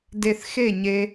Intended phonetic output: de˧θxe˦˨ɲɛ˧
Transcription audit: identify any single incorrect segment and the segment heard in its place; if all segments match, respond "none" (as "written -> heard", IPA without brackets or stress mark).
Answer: ɛ˧ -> e˧